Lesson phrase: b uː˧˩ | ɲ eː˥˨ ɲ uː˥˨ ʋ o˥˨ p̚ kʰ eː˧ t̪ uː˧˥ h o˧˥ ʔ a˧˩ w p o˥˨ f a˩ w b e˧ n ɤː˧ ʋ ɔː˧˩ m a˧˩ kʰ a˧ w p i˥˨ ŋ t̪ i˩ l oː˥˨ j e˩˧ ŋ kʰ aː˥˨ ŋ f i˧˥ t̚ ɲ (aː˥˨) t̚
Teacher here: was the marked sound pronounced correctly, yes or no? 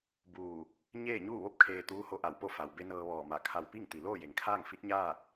yes